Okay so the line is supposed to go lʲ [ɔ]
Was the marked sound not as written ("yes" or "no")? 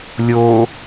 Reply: yes